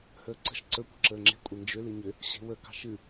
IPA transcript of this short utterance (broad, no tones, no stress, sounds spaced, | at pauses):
h əː ǀ ə̤ ʃ ǀ ə kʷ ə̤ ǁ əː ŋ͡ǁ e̤ kʷʼ e n d͡ʒ ʏ l ɨ ɲ ʏ | ɕ e̤ w ə k ɑ̤ ʃ ɨ